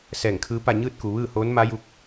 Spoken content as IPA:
sɛː˧˩ŋkʰɯː˧˥pa˥˨ ɲɯː˥˨t̚ku˩ ʋɯː˥˨hoː˧˥nma˧˥ju˧˥k̚

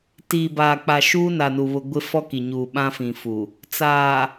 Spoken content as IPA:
tiː˨baː˨k͡pa˨ʃuː˦ na˨nu˨βʊ˨ ɡʷɪ˦ fɔ˦ki˨ɲuː˨ ɓã˦fĩ˨fu˨ | t͡saː˨

